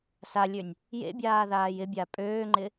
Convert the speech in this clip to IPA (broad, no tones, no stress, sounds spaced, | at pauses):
s a lʲ ø nʲ | j ḛ bʲ aː ð aː j ɪ bʲ a pʼ øː ŋ͡ǃ ɪ